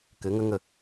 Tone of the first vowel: rising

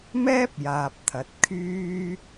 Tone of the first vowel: high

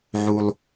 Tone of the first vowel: low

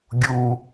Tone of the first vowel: low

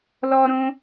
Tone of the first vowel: high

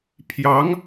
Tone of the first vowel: rising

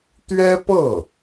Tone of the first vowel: high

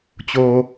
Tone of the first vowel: low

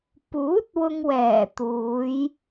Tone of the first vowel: rising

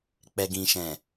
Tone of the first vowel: low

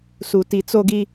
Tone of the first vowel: low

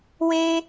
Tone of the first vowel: high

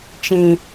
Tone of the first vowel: low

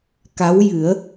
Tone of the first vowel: rising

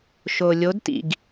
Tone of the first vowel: low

